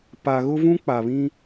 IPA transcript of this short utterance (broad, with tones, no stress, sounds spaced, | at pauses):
p a˨ ɣ ʊ˦ v ũ˦ k͡p a˨ β ĩ˦